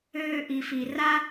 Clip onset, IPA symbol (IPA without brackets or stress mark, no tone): øː